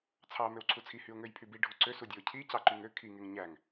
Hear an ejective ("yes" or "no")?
no